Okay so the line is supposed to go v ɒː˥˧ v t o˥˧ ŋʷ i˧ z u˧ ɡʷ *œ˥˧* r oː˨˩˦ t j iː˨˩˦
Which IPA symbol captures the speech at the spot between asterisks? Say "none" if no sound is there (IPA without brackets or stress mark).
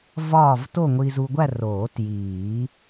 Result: æ˥˧